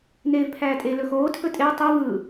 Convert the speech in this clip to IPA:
n eː v pʰ æː tʼ e l ɵ x oː tʰ ɵ tʼ e w tˤ ɯ v ɯ

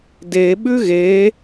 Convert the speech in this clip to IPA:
d e ɓ ʉ ɣ e

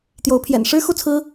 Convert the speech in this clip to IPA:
t̪ j o˨˦ ʊ̯ pʰ j ɛ̰˨˩ n ʂ ɻ̩˦ x u˥˨ t͡sʰ ɹ̩˦

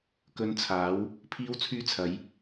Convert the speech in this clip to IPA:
k ɵ˧ n t͡sʰ aː˨˥ w | pʰ iː˥ w t͡sʰ yː˥ t͡sʰ ɐ˨˥ j

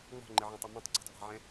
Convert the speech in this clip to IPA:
ŋ͡m ɔ̤ ŋ͡ǃ ɪ ʕ ɛ̃ tˤ ɪ m ɛ̃ tˤ ǀ a̤ tˤ v a̤ ʕ ɛ̃

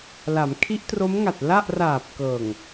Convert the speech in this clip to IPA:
l a˩˦ m kʰ i˦˥ ʔ t r o˦˥ m ŋ a˨˩ t̚ l a˥˩ ʔ r aː˨˩ p̚ k ɤː˨˩ ŋ

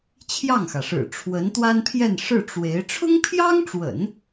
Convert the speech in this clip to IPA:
t͡ɕʰ j ɑ˥˩ ŋ x ä˩ ʂ ɻ̩˨˩ ʈ͡ʂʰ w ə˧˥ n t̪ w a˥ n pʰ j ɛ˥˧ n ʂ ɻ̩˥˩ ʈ͡ʂ w e˧˥ ɪ̯ ʈ͡ʂʰ ʊ˥ ŋ pʰ j ɑ˥ ŋ ʈ͡ʂ w ə̰˨˩˦ n

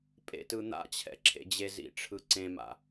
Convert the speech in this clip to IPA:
pʼ ḛ t ɯ n̪ a̰ t͡ɕʰ ɛ̰ ǁʰ ḛ d͡ʑ e z ḭ ʈ͡ʂʰ ɯ ǀ ẽ m a̰

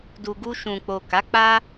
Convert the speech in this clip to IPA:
d u˨ ɡ u˧ ʃ ũ˨ k͡p o˨ k a˨˦ k͡p a˦

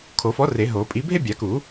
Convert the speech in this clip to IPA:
kʰ o˨˩˦ f ɔ˨˥ r e˨˩˦ ɦ o˨˩˦ pʼ i˨˥ bʱ e˥ bʲ a˨˩˦ k u˨˩˦

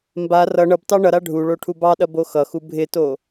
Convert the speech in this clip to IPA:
m b a r ʌ ɳ ʌ b t ɑ ɳ ʌ ɾ a ɖʱ u ɭ o ʈʰ u b ɑ ɗ ɐ b o x ʌ x u bʱ ɪ t o

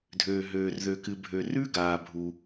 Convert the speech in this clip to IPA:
dʱ øː˩ ɦ øː˩ r ð ø˩ k ɨ˩ bʱ ø˩ r ʉ˥ ɡ aː˩ bʱ u˩

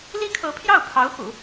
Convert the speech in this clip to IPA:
l i˥ kʰ ɤ˧˥ pʰ j ɑ˥˩ ʊ̯ pʰ ɑ˧˥ ʊ̯ x ṵ˨˩˦

